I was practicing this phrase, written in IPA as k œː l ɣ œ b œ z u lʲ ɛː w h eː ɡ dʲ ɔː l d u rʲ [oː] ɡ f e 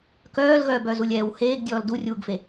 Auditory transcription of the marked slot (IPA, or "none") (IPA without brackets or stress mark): uː